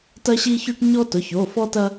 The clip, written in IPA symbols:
tɐ˦ɕi˦çʉ˦ʈ ɲɔ˦tʊ˩˧˩ç o˩˧˩fɔ˦tɐ˦

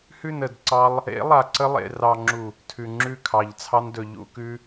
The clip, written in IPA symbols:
hʉ˦˨nə˨d ǀɑ˧lˠ | ḛ˨˦lˠa˨ǀə˧ lˠḛ˨rɑ˨ŋ͡ǁu˨ | tʰʉ˨ŋ͡ǁʉ˦˨kʰɑ˨ʎ t͡sʰɑ˧ndɵ˨ ʎṵ˦˨kʉ˧

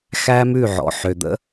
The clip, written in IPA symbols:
xæ˦mʉ˦˨ʕɔ̰˨ ħø˨d̪ə̰˦

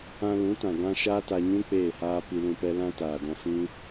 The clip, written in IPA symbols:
ã˧lũ˨˦ tã˨ ɡã˦ ʃaː˦ta˧ɲũ˦ k͡peː˦˨haː˦ pi˧lũ˧pɛ˦ lã˦taː˨dɔ̃˧ fĩ˦

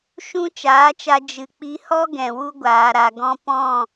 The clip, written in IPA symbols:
ʃũ˦t͡ʃaː˨˦t͡ʃa˧ d͡ʒɨ˨k͡pi˧hɔ˦ ɡɛ̃˨wu˧ɡʷaː˨ ɾa˨ ɡɔ̃˧ pɔ̃˦˨

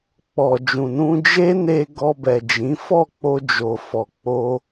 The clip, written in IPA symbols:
k͡pɔ˨d͡ʒũ˨nũ˧ d͡ʒe˦ne˧ ɡɔ˧bɛ˨d͡ʒĩ˨˦ fɔ˦˨k͡po˧d͡ʒo˨ fɔ˨k͡po˧

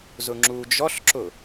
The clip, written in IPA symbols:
zʊŋ͡ǁud͡ʒɔɬǁʊ

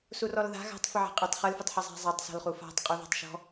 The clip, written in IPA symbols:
surɔlða̤ ɣa̤tˤfɪʕa̤ qʼɪtˤ χɯlfʊtˤħɪ zˤa̤zˤatˤsɔ̤l χufa̤tˤ qʼuða̤tˤʃɔ̤

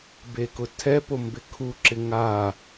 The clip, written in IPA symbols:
bekʊtʰɛpo mbɪkʰuǁɪ ŋa

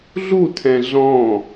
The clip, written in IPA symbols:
ɮutʰɛ̃ ɮɔ̃

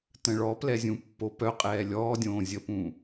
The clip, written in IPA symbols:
tə̃ɭɔplɛ zʲũpːopœqʼɛː lʲɔːdʲõː zʲəpũ

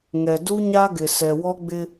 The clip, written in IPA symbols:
ŋɛ˨ du˦ ɲa˦ɡɪ˨sɛ˨ wɔ˦ɡ͡bɪ˦

